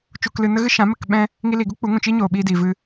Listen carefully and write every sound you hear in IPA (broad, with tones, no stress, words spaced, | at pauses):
t͡ʃu˨klɨ˨ nə˦ɣɨ˦ ʃã˨˦mə˦˨k ɓɛ̃˦ | ŋi˧li˨ɡu˦ k͡pu˨˦ŋũ˨t͡ʃi˦ ɲoː˨ɓiː˧di˨vɨ˧